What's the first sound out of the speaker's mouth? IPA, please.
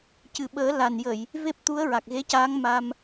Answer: c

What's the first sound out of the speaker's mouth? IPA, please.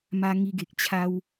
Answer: m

